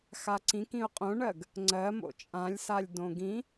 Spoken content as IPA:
x a ǀ ĩ k ĩ ʊ̯ qʼ õ ɳ ɜ ɡ | ŋ͡ǀ ɜ m o̰ t͡ʃʼ ã lʲ s a lʲ d õ ɡ ĩ

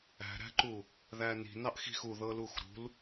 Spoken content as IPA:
æ̤ ɾ æ̤ ǃ u | ð æ n i̤ n ɑ ʔ x i̤ x u ð ɤ l u x ɾ ṳ l

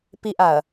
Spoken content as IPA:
p i ʔ a ɐ̯

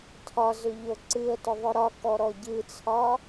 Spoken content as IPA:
tʰ ɒ z ʏ ʎ o ǀ ɨ ə̯ t ʏ ðˤ ʏ ɾ ɒ k ɔ ɾ ɔ ɟ ɨ t͡sʰ ɒ

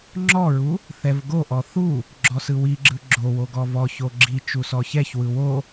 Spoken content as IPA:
ŋ͡ǁ ɔ ɹ u | θ ɛ v ɡ o ʔ ɔ θ u | ɡ͡ǁ ɔ s ɯ w i ɡ͡ǁ ɯ ɡ͡ǁ o w o ɡ ɔ v ɔ ç o ɡ͡ǁ i t͡ʃ u s ɔ ç ɛ ç w ɯ w o

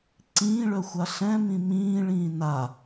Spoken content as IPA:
ǀ ĩː ɭ œ xʷ a ɬ ɛ̃ m ĩ m ĩː ɭ ĩː n a

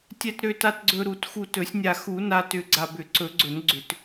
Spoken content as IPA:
tʲ ɛ˨ t ɾ ø˨ t a˨ t ɡ͡ǀ ɵ˨ ɾ u˨˩˦ t x u˨ t ɵ˨˩˦ sʲ nʲ a˨ x u˨˩˦ n a˨ t ʏ˨˩˦ ɡ͡ǀ a˨ b ʏ˨˩˦ ǀ ɵ˨˩˦ ɡ͡ǀ ɵ˨˩˦ n ɡ͡ǀ ʏ˨˩˦ t

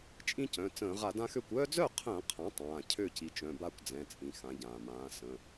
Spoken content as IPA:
t͡ʃʼ ĩ˦ c œ̃˩˧˩ t͡s ə̃ː˧˩˧ ʁ a˧˩˧ d ã˦ x ø˥˩ kʷ œː˦ d͡z œ˥˩ qʰ ə̃ː˧˩˧ qʰ ã˩˥ tˤ ãː˩˧˩ cʰ ø˥˩ c i˩˥ t͡ʃ œ̃˩˧˩ b a˥˩ kʷ d͡z ɛ̃˩˧˩ t͡sʼ ĩ˩ x ã˩˥ ɟ ãː˩ m ãː˩˥ s ə̃˩˧˩

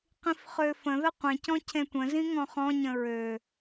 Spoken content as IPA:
q ĩ f χ ø f ə̃ ð ə qʷ ẽ c ɔ̃ cʰ ẽ tʷ ə̃ z ĩ ŋ ɔ̃ χ ɔ̃ ɲ ə̃ ɹ ø

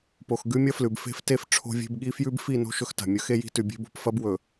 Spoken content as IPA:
p o˨ x ɡ ʉ˦ mʲ ɐ˦ f l ʉ˨ b f e̤˦ f t e˦ f ʈ͡ʂʰ o̤˦ vʲ e̤˦ b ɠ i˦ f j ʉ˦ b f i˦˨ n o̤˦ ʃ ɵ˦ x t a̤˨ mʲ ɵ˦ x e˦ j i̤˦ t ʉ˨ bʲ e̤˦ b o̤˨ p f ɐ˦ b w ɵ˨

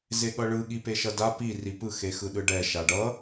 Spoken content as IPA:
z e ɠ ʌ ɭ ɯ ɠ i p e ʃ ʌ d a p i r i p ɯ x e x ɯ ɗ ɯ ɖ ɛ ʃ a ɖ ʌ

